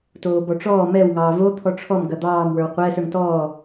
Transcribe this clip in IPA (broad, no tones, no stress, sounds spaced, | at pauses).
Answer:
t oː b ɔ ʈ͡ʂ ɔː m ɛ w ŋ ɑː v o t̪ʰ ɔ ʈ͡ʂʰ ɔ m ɡ ɐ d̪ ɑː m w ə˞ w qʷ ɛː s ə˞ ŋ t ɔː